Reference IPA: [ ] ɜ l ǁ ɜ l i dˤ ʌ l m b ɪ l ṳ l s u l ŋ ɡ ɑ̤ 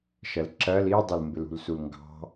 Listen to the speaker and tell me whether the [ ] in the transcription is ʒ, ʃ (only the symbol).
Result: ʃ